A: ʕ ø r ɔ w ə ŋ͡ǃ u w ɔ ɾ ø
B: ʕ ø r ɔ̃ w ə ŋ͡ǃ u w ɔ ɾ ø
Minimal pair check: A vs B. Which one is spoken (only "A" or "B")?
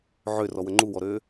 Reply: A